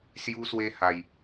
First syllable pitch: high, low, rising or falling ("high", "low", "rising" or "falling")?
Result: high